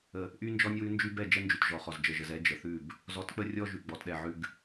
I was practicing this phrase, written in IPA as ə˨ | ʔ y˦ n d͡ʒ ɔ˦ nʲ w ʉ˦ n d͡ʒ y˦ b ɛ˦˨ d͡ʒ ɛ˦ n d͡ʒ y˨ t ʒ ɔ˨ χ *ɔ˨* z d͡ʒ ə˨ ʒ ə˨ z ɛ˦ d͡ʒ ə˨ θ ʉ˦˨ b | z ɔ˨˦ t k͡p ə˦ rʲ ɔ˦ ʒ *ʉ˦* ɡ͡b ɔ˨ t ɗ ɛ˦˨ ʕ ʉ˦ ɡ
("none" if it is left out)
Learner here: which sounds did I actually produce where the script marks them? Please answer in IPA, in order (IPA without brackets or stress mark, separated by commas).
ɔ˨, ʉ˨